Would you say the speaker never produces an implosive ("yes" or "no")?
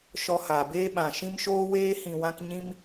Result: no